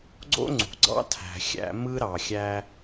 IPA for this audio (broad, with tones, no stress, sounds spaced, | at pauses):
ɡ͡ǀ o̰˥ ŋ͡ǀ ṳ˩ ɡ͡ǀ ɑ̰˥ tʰ æ̤˩ xʲ æ̰˧ m ɯ˥ ɾ ɑ˩ xʲ æ˧